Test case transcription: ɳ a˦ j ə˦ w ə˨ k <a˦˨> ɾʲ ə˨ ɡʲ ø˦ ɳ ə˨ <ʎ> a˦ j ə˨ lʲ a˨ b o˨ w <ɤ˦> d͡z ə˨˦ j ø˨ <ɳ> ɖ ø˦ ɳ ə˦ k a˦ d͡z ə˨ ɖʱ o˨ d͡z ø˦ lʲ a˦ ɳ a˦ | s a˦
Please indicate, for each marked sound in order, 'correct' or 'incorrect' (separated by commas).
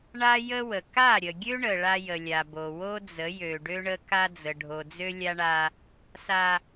correct, incorrect, incorrect, incorrect